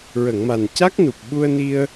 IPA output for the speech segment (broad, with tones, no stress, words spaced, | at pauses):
ɹə˨˩˨ŋma˨˩nca˦˥k̚nu˨˩p̚ ɓu˧ə̯ni˧ə̯